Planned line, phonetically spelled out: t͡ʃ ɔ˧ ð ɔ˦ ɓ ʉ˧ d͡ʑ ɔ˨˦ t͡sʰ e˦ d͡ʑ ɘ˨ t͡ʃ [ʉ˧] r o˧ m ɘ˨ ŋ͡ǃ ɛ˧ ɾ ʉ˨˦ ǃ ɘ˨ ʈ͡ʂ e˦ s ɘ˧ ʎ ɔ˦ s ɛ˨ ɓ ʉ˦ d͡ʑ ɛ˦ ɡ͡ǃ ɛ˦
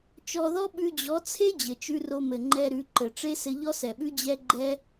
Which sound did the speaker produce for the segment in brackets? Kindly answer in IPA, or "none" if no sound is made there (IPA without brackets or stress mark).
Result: ʉ˦